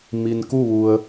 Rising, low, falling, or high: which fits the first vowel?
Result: low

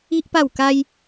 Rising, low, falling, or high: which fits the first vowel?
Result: high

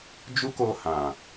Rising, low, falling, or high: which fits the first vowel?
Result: high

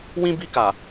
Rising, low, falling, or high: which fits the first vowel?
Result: high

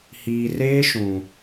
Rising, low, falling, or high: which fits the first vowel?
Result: low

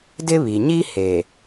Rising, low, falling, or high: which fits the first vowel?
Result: high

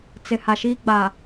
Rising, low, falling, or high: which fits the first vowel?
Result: low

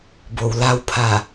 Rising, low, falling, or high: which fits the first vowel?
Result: low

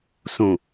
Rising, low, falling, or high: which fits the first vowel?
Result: low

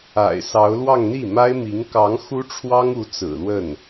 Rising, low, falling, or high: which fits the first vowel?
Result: low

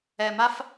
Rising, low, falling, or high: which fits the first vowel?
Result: low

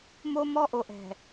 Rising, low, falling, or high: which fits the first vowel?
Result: high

